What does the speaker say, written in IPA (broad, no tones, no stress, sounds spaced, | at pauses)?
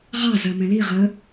ʁ ɑ z ɜ m ɛ̃ l i ʁ ə